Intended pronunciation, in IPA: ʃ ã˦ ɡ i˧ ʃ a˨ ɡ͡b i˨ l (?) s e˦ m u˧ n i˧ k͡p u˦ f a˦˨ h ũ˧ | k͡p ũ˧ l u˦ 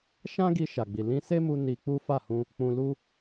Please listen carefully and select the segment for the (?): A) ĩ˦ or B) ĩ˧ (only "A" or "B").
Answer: B